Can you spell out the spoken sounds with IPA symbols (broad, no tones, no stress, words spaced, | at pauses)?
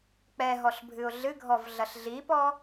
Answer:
k͡pɛɦɔɬ bʱɨʊ̯ɮɨɡʱɔv ɮɐɬɮipɔ